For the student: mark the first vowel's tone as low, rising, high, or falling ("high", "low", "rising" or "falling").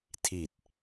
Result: low